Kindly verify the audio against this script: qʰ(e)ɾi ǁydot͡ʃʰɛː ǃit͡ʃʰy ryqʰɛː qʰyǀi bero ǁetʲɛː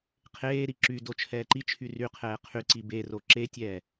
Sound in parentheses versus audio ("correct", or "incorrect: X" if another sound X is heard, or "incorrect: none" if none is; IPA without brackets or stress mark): incorrect: eː